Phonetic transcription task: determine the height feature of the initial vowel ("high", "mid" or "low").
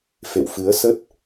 mid